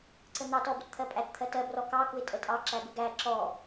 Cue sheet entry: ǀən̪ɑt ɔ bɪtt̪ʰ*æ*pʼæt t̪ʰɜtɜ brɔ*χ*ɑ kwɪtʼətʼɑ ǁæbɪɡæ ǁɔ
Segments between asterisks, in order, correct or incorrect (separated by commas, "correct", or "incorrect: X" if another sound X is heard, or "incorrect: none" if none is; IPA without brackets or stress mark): incorrect: ɜ, incorrect: k